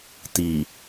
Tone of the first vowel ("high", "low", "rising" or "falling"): low